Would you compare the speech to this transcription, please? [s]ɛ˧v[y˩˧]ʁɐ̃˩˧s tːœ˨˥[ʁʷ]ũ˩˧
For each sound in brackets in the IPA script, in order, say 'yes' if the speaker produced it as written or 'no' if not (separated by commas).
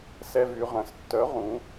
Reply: yes, yes, no